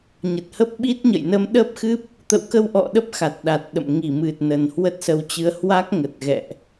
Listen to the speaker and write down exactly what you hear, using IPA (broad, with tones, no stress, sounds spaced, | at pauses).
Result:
ɲ ə˨˩ t̚ h ə˦˥ p̚ ɓ i˦˥ t̚ ɲ ə̰˧˨ j n ə˧ m ɗ əː˦˥ p̚ x ɨ˦˥ p̚ | t̪ ə̰˧˨ w k ə˧ w ʔ ɔ̰˧˨ ɗ ə˦˥ p̚ x a˨˩ t̚ ɗ a˨˩ t̚ ɗ ə̰˧˨ m ŋ i˧˩ m ɨ˨˩ t̚ n ə˨˩ n h w ə˦˥ t̚ s ə˧ w t͡ɕ ɨ˧ ə̯ h w a˦˥ k̚ ŋ ə˨˩ t̚ ɣ ɛ̰˧˨ ʔ